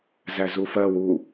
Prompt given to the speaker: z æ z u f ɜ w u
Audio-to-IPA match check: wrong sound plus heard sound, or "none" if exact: none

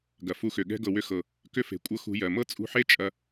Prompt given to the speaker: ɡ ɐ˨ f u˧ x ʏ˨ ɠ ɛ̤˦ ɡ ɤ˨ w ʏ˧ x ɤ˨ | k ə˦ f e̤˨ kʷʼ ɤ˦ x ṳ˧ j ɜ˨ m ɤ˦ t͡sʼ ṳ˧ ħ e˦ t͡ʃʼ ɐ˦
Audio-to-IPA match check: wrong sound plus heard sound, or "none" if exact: ə˦ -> ʏ˦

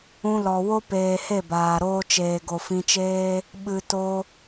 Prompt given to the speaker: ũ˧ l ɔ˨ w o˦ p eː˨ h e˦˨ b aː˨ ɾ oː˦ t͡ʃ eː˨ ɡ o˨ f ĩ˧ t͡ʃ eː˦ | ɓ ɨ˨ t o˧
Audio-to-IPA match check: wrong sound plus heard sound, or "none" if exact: none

